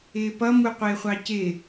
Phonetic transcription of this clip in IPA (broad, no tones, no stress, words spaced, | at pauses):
ɪːpʌ muqʷɪːχʷɑcɪː